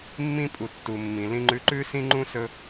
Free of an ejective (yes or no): no